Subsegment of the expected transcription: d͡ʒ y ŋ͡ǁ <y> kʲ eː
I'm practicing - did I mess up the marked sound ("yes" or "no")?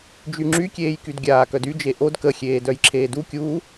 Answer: no